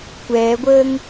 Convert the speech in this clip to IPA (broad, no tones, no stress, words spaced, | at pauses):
kʷɛːɡʷəːŋ